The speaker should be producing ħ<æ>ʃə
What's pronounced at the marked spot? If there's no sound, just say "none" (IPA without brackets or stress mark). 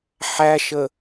æ